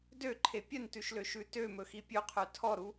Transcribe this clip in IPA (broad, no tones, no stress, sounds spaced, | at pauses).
d ø ǃʰ e pʲ œ n t ʉ ʃ l ø ʃ ʉ t ø m ɵ x i pʲ ɵ qʰ œ tʰ ɔ ɾ u